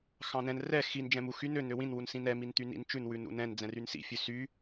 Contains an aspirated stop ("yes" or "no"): no